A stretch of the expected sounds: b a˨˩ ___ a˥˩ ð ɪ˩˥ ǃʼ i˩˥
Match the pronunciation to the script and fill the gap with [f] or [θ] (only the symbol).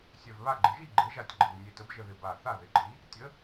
θ